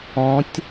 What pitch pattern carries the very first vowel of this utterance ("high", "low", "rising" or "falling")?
rising